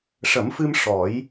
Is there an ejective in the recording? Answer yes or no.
no